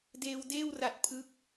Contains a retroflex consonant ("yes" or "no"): no